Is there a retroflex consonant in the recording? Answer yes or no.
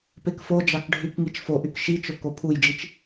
yes